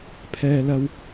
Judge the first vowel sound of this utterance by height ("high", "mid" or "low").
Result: mid